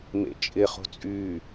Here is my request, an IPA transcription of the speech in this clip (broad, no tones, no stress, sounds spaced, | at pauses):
m ḛ t͡ʃʼ ɪ χ o̤ t͡sʼ y